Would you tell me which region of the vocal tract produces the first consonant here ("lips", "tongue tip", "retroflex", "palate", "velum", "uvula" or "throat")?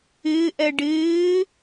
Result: throat